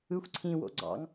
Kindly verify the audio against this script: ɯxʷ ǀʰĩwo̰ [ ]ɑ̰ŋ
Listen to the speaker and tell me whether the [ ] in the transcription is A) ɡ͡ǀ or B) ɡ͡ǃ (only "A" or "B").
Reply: A